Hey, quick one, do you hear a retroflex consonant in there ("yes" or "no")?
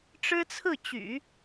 yes